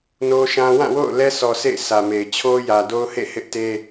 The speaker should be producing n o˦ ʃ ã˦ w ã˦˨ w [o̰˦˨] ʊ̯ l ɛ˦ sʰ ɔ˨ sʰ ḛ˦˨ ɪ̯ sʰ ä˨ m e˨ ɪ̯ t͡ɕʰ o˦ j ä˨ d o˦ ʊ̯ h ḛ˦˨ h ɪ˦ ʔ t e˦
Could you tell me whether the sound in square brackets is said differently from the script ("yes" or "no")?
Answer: no